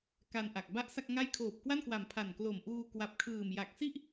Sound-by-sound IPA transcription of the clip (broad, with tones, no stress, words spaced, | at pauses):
ka˧nʔa˨˩k̚ ba˥˩ʔsa˥˩k̚ŋa˥˩j kʰoː˨˩p̚kwa˥˩nkwa˨˩m pʰa˨˩nklo˨˩mʔuː˧ kwa˨˩p̚kʰɯː˨˩m ja˨˩k̚si˥˩ʔ